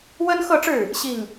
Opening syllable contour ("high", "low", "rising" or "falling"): high